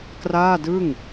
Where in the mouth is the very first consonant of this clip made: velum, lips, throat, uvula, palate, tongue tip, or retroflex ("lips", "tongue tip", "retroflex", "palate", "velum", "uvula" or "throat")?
velum